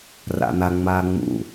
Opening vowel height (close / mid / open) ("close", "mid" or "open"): open